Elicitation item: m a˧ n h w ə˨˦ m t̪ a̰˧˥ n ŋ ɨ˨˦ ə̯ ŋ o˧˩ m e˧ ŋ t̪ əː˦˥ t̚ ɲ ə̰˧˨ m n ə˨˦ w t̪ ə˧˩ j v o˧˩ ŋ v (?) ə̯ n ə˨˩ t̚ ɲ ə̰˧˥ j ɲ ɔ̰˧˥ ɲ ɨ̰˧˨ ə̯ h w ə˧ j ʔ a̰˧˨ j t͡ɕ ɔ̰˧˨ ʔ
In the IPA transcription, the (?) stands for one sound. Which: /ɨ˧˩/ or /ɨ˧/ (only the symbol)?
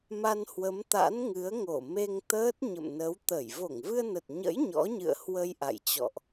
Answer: ɨ˧